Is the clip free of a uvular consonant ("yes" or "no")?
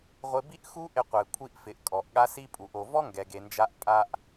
no